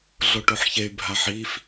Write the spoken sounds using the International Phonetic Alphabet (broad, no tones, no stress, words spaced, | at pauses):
ɮoʈoħçey̯ bʱaħif